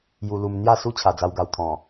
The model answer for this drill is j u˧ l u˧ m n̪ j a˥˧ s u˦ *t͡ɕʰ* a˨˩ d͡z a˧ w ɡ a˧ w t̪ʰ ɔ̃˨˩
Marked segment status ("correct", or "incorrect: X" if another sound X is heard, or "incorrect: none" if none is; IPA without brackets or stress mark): correct